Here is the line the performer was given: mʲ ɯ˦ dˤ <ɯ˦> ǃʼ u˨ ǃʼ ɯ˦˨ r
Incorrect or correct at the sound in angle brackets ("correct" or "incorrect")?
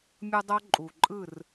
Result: incorrect